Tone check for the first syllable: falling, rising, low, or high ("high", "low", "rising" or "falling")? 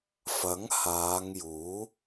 rising